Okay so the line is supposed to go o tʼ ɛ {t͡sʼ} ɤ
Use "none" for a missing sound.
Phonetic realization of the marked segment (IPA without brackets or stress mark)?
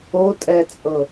t͡sʼ